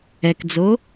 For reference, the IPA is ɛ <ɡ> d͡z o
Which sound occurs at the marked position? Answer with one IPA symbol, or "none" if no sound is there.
k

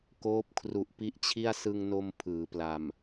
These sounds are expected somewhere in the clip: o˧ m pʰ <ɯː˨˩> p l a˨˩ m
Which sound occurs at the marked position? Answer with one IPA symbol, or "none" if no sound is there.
ɯː˩˦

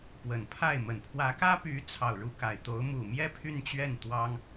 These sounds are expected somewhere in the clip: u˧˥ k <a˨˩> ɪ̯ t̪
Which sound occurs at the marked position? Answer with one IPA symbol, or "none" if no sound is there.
a˨˩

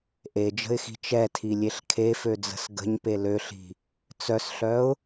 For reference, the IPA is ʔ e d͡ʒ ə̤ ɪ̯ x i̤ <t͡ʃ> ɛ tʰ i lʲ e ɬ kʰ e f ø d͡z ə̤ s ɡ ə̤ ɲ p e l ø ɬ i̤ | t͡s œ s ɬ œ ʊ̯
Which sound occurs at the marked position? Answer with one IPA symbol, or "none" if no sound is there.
t͡ʃ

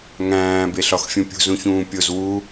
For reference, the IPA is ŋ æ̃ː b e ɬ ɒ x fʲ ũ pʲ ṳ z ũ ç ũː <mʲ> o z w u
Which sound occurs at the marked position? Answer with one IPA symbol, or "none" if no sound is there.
pʲ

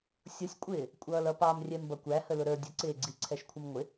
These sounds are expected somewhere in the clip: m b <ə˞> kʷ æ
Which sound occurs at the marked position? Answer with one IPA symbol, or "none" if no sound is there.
ʌ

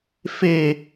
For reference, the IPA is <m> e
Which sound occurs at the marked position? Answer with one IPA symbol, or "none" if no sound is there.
f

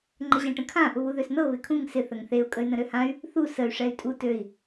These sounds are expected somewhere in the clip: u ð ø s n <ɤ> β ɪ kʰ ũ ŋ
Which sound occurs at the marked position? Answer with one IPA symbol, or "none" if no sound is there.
ɤ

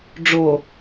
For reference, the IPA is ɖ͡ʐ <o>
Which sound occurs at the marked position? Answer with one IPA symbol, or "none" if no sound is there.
o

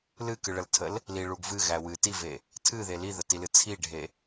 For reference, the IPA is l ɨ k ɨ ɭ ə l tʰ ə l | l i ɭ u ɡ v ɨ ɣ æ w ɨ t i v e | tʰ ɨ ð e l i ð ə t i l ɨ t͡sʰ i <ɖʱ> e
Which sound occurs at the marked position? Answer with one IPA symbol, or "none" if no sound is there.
ɖʱ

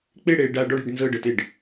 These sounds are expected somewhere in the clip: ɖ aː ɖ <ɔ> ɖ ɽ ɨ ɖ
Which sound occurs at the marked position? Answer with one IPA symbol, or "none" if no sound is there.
ɔ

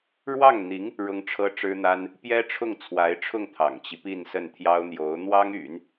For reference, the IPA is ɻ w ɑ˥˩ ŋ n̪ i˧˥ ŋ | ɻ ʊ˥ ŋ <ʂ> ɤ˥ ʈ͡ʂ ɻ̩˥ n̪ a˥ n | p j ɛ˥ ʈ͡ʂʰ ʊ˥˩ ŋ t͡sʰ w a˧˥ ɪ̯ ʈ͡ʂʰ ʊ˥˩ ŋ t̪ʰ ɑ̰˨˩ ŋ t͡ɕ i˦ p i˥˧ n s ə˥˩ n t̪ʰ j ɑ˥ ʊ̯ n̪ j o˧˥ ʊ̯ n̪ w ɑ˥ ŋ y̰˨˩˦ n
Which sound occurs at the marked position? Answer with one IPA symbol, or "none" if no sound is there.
ʈ͡ʂʰ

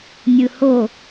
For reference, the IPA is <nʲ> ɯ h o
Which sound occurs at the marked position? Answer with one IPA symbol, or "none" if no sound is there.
nʲ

